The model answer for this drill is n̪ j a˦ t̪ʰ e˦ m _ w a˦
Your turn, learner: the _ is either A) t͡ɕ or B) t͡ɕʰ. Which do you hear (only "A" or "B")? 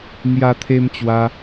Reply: A